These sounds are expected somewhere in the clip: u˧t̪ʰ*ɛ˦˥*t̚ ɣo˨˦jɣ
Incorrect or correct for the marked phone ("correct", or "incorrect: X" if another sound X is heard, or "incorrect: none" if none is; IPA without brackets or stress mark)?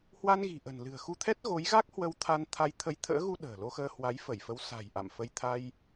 correct